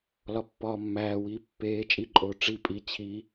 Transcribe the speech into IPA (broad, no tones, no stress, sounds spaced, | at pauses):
l ɒ pː ɒː mː æː w iː pː eː t͡ʃʼ i ǃʼ oː ʈ͡ʂ i pʼ i t͡ɕʰ i